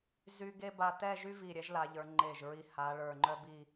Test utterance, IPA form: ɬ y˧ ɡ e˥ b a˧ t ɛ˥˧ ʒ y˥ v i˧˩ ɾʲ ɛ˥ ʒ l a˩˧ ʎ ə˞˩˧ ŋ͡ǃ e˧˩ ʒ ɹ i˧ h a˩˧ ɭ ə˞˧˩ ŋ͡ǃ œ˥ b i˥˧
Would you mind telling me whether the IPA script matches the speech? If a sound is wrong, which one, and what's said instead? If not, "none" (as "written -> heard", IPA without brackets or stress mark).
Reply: ɬ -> z